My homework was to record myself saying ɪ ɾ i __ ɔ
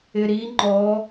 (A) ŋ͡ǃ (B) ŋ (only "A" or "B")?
A